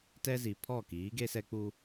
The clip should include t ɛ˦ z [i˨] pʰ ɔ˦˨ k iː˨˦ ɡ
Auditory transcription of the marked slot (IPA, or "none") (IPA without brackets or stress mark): i˨